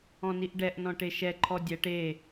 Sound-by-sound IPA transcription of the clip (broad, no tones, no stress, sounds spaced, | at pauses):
ɔ̃ n i ʔ ɖ ɛ ʔ n ɔ̃ ʈ e ʃ ɛ ǃʰ ɔ dʲ ɛ ʈ e